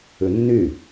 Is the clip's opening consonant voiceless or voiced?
voiced